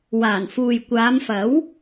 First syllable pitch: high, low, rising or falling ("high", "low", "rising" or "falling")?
low